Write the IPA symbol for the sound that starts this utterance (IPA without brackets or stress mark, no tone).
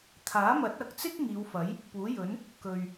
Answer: t̪ʰ